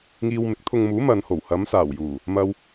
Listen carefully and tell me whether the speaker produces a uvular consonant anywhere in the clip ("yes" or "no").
no